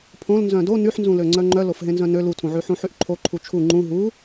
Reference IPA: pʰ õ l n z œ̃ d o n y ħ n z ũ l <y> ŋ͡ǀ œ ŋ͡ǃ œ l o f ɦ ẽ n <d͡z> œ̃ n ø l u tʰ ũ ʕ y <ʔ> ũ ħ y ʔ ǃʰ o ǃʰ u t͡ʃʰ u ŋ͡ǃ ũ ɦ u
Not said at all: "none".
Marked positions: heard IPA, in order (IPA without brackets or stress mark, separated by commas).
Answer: ø, z, ħ